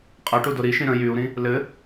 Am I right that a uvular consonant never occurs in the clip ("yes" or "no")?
no